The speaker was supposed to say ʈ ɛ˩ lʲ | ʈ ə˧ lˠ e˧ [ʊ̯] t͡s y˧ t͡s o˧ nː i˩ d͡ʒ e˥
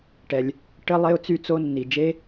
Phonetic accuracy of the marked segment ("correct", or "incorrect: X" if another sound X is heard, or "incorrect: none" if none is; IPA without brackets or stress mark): correct